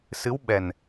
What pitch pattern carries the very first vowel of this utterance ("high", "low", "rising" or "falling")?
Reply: rising